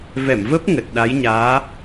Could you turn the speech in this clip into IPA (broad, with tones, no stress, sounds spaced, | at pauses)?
v ɛ˧˩ m v ə˦˥ p̚ ŋ ə˨˩ t̚ ɗ a˨˦ j ɲ aː˨˦